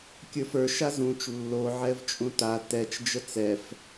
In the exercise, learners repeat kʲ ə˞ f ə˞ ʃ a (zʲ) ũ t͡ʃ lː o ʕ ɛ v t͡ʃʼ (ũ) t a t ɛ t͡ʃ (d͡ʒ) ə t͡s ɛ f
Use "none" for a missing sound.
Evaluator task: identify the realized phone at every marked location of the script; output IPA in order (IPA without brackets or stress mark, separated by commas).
z, ũ, d͡ʒ